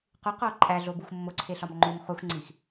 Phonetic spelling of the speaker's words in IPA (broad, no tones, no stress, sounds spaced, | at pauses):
q u q oː ǃʼ æ ɮ o b u x mː o ǀʰ e ɬ ɒ m ŋ͡ǃ o m χ u x ŋ͡ǀ iː x